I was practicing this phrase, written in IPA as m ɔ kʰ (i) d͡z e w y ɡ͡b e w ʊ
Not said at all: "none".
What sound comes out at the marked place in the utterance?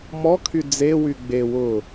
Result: y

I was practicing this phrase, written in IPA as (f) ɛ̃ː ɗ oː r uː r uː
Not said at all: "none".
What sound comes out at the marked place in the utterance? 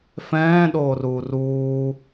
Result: f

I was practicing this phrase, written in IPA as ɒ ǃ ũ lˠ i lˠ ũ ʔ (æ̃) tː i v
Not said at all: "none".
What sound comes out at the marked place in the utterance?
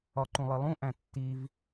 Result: æ̃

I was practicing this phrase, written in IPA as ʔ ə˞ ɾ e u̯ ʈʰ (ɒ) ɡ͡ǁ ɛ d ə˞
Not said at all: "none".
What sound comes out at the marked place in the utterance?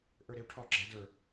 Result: ɒ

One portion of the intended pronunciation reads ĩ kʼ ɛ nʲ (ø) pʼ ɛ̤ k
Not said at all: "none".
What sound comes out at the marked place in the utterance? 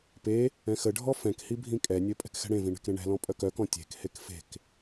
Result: ø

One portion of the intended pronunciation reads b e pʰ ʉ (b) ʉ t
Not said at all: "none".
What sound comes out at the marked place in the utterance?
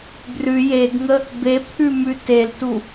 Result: m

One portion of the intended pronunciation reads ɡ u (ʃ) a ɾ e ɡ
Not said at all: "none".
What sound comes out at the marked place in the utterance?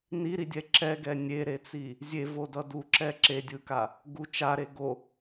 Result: t͡ʃ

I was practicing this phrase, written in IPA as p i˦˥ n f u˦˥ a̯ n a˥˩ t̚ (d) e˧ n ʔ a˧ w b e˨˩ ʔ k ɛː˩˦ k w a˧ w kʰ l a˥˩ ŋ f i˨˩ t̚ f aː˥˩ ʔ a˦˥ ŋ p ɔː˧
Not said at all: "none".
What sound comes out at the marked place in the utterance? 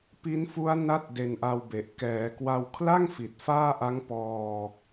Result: d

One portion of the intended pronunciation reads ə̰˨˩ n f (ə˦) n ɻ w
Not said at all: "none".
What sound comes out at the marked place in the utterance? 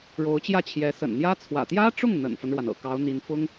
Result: ə˦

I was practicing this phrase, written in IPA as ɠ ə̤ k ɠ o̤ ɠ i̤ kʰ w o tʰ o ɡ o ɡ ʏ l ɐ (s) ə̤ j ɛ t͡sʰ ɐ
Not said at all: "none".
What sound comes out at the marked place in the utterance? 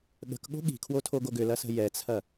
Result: s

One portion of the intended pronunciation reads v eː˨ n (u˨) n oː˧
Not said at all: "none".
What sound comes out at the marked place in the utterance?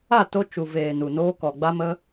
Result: u˨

